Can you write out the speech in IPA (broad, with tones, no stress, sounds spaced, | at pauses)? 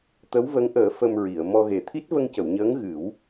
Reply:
t̪ ə˧˥ w v ə˧˥ ŋ ʔ əː˨˩˦ f ə˧ m ɹ i˨˩˨ ə̯ m ɔ˧ ɣ e˨˩ t̪ʰ i˦˥ t̚ v ə˧ ŋ c ə˨˩˨ w ɲ əː˧˥ ŋ ɣ ɨ˨˩˦ w